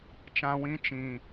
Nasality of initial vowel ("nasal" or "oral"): nasal